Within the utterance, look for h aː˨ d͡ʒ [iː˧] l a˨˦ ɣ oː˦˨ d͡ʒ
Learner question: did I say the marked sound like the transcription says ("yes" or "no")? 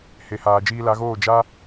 yes